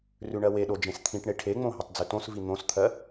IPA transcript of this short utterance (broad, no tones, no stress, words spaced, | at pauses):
rʉɳɜweɗo d͡ʒẽst̪ʰĩʈɳe ʈʰeŋ͡mõ ɦetˤd͡zʉtõsvi n̪õst̪ʰɜ